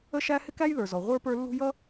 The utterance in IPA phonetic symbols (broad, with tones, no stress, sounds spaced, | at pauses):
ə˥ ʃ æ˥ h ɪ˥ k æ˥ j ð ə˞˩ z ɔ˩ ʁʷ ə˞˥ p ə˞˥ lː ṳ˥ j ʌ˥